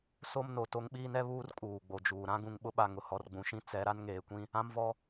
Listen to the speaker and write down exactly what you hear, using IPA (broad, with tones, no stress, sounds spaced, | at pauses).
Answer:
s o˦ m n o˨ t o˦ ŋ ɓ iː˦ n ɛ˦ β uː˦ r kʼ uː˨ ɡ͡b o˨ d͡ʒ uː˨ ɾ ã˦ ɡ ũ˨ ŋ ɓ ʊ˦ ɓ a˨ ŋ ʊ˨ h ɔ˨ r ɡ͡b ũ˨ ʃ ĩ˦ t͡s ɛ˨˦ ɾ a˦ n ŋ eː˨ kʷ ĩ˦ | ã˦ m v ɔ˦